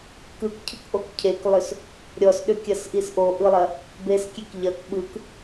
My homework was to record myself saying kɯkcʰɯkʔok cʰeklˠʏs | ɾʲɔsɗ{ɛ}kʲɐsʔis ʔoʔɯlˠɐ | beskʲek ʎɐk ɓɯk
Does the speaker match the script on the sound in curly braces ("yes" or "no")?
no